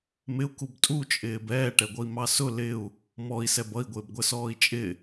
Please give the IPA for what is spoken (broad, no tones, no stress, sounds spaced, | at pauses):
m ɪ u̯ k u b tʼ u t͡ʃʼ ɪː b ɛː ʈ ɛ ɡʷ ʌ i̯ m ɑ s ʊ l ɪ u̯ | m ɔ i̯ s ɛ b ʌ i̯ ɡʷ ɪː b ɡʷ ə s ɔː i̯ t͡ʃʼ ɪ